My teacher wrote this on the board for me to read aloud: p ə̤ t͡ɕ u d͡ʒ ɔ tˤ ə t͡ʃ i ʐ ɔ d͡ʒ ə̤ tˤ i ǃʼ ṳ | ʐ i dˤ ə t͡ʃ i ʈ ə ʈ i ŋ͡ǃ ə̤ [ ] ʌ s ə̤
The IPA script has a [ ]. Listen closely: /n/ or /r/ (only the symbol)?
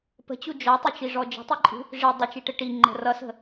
r